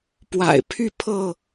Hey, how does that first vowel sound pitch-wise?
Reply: low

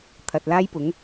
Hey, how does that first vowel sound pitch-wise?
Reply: low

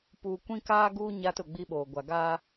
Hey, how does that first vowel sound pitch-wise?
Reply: low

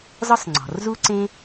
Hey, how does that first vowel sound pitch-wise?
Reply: high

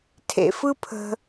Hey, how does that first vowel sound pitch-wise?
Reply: low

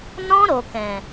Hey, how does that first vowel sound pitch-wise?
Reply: high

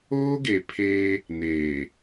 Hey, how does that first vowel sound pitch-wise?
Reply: high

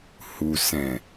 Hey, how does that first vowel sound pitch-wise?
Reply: low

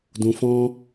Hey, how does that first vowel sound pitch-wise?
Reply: low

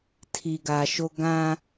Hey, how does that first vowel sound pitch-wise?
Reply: low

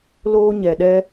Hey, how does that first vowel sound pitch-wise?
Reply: high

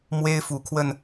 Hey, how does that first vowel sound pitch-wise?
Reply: high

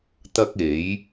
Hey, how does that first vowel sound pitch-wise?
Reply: high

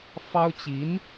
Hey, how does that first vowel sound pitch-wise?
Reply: high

